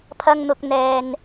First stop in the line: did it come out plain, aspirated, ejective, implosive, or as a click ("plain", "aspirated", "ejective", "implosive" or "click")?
aspirated